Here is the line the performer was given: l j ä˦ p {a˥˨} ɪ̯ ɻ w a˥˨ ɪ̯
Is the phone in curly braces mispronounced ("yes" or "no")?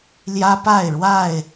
no